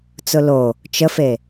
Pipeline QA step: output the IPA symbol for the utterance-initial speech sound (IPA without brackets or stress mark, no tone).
t͡s